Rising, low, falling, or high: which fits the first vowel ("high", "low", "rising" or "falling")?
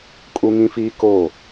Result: high